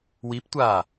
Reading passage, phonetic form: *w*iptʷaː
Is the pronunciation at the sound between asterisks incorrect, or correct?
correct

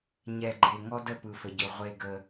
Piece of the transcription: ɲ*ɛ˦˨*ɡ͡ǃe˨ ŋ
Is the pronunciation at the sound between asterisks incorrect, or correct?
incorrect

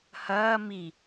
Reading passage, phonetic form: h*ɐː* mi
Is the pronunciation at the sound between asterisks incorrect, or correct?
correct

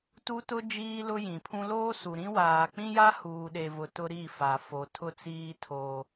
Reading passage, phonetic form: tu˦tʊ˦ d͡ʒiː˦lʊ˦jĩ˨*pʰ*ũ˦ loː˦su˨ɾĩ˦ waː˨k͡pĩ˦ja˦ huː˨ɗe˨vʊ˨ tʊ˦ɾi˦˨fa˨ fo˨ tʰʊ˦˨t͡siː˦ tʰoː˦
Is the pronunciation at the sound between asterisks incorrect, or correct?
correct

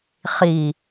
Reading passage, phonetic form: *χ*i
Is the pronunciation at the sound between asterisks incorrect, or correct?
correct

